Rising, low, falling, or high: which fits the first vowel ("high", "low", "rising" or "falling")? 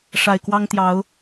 low